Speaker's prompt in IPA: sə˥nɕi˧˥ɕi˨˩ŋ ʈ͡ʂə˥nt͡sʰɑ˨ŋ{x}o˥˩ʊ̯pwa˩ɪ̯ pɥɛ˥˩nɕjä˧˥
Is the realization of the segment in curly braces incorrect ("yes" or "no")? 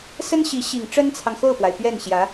no